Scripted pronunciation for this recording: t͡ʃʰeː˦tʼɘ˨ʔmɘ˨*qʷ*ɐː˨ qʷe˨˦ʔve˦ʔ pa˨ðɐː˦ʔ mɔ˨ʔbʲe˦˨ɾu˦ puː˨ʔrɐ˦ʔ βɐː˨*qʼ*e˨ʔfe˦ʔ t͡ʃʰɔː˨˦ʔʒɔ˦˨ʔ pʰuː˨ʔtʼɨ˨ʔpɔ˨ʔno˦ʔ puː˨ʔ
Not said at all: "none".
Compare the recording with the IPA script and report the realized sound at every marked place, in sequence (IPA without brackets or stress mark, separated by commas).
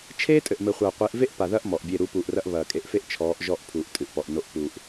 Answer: χʷ, kʼ